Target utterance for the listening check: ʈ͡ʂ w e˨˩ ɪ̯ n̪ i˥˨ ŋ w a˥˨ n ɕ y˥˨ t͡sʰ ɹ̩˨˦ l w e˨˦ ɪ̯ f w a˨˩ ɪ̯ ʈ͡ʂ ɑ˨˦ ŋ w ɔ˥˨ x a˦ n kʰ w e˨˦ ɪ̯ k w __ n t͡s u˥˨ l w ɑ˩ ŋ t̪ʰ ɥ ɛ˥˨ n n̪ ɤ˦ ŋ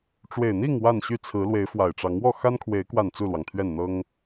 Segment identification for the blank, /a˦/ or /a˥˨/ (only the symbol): a˥˨